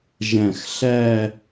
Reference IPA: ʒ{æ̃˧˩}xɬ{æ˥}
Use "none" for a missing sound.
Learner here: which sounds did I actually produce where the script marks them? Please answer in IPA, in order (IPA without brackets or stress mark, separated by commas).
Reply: æ̃˧˩, æ˥˧